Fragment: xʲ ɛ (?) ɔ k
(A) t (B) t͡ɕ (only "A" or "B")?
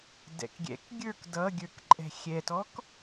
A